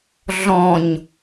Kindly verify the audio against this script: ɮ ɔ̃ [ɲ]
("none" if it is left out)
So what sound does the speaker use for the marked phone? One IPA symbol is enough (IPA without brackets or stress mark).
ɲ